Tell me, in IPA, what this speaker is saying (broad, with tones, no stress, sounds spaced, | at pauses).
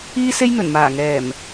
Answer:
iː˥ s e˥ j n̪ ɵ˨˩ n m aː˨˩ ŋ ɛː˨˩ m